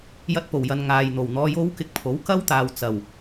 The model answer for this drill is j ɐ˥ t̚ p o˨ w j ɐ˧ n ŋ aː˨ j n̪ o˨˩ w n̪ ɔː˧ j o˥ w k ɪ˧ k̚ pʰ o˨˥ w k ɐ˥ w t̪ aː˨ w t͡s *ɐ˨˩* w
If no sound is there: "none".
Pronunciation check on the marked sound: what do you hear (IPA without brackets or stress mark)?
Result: ɐ˨˩